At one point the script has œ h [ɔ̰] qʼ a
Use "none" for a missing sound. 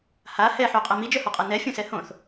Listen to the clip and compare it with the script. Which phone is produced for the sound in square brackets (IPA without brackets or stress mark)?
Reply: ɔ